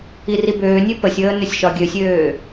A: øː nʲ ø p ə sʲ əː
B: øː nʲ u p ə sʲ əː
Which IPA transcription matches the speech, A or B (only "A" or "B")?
A